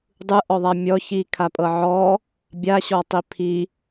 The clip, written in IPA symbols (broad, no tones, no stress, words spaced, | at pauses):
dˤɯʔɔðˤa mʲɔ çi kʰapʼɤʕɔ | bʲaɕɔtˤi pʰi